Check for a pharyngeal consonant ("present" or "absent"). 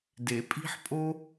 present